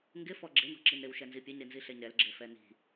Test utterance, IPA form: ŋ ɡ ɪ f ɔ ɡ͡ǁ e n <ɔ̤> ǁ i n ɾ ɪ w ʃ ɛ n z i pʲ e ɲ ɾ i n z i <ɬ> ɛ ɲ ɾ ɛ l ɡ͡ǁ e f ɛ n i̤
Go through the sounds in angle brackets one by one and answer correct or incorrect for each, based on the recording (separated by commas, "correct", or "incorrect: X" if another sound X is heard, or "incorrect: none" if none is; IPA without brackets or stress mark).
correct, correct